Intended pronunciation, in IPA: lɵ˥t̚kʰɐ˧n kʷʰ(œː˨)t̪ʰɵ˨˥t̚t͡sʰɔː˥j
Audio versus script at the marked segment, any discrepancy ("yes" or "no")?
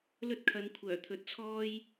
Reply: yes